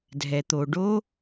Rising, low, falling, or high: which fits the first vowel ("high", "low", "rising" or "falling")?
low